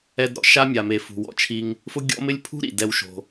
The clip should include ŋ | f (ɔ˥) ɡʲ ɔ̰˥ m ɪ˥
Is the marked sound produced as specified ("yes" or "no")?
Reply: no